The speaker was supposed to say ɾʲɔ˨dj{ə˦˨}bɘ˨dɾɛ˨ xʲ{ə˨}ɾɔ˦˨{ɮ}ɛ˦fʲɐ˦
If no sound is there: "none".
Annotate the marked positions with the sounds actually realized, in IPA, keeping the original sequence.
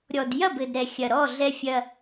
ɐ˦˨, ɐ˨, ɮ

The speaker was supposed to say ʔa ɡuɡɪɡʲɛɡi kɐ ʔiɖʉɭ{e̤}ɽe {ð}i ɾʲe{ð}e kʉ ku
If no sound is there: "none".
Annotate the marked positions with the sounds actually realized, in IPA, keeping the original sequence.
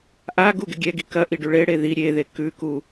e, ð, ð

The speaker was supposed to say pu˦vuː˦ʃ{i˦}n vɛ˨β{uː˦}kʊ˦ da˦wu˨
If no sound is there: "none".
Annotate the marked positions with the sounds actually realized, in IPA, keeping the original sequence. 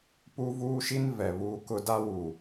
i˦, uː˦

